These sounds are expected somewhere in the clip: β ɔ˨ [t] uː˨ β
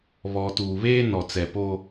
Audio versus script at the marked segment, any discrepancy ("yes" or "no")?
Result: no